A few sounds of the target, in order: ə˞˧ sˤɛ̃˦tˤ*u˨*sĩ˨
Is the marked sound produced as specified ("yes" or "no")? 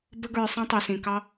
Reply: yes